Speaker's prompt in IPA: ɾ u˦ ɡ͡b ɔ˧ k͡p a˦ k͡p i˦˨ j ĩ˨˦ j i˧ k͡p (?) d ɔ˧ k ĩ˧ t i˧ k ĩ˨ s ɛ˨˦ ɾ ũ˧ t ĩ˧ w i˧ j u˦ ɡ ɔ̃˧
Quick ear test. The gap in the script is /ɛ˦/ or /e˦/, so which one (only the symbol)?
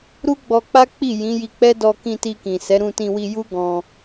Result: ɛ˦